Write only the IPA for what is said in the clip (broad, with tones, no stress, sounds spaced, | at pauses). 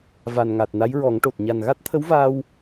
v a˨˩ n ŋ a˨˩ t̚ n a˧˥ j ɹ ɔ˨˩˦ ŋ ʈ o˨˩ t̚ ɲ a˨˩ n ɣ a˦˥ t̚ t̪ʰ ə˧˥ w v aː˧ w